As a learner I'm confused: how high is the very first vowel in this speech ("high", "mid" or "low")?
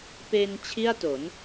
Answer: mid